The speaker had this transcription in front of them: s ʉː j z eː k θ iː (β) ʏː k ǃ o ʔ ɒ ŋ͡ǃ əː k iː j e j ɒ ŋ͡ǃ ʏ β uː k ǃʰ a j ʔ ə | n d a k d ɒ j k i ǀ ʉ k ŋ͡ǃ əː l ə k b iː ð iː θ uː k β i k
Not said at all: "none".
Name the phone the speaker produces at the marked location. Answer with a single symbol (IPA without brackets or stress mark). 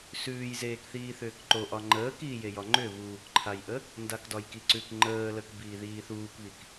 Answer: θ